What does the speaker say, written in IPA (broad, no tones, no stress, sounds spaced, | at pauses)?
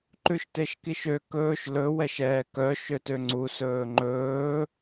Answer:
ǃ ʉ ʃ t e ʃ k i ʃ ø k ɵː ʃ l ɵ w ɛ ʃ ɛː k œ ʃ ø t ø ŋ͡ǀ u s ɵː ŋ͡ǃ ɵː